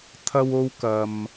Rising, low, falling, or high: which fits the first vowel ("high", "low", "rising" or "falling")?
high